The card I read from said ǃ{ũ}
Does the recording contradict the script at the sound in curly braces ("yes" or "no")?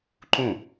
no